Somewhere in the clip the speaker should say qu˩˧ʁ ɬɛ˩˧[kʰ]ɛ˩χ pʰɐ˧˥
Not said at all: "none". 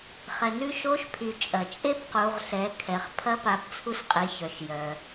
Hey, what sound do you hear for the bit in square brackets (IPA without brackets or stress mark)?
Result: kʰ